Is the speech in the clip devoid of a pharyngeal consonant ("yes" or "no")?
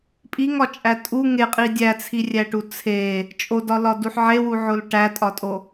no